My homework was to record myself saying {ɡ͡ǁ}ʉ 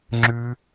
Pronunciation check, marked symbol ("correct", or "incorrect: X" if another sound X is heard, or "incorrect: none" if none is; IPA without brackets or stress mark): incorrect: ŋ͡ǁ